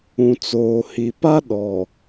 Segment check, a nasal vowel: present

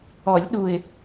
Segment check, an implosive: present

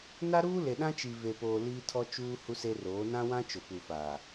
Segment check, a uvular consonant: absent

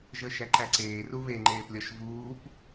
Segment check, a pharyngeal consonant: absent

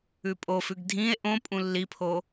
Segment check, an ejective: present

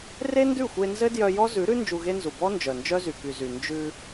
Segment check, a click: absent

